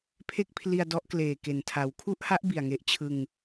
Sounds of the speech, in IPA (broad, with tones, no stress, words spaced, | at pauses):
pʰe˥˩k̚pʰli˧a̯ dɔ˦˥ʔkleː˨˩ ke˨˩ntʰa˨˩w kʰu˥˩ʔha˦˥ʔ bi˨˩a̯ŋe˦˥ʔ t͡ɕʰɯ˧ŋ